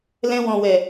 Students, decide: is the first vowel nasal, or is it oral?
nasal